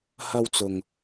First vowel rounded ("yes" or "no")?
no